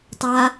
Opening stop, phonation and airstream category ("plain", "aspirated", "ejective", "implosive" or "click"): plain